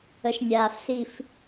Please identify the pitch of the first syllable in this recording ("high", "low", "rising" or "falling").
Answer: low